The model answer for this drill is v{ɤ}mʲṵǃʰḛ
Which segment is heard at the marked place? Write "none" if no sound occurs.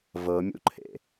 ɤ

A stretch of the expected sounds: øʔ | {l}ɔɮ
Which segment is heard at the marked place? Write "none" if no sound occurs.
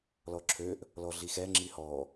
l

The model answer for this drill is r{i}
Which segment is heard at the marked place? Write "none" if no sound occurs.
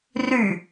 y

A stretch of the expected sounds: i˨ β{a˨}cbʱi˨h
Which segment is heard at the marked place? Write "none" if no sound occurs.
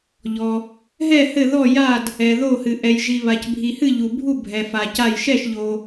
a˨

